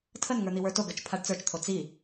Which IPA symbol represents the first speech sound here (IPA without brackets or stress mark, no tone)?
tʰ